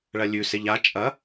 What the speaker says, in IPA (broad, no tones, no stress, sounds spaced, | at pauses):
ɭ ɐ lʲ ʉ s e ʎ a t͡ʃʼ ɐ